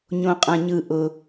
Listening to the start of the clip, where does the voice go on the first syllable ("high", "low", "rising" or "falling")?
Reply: low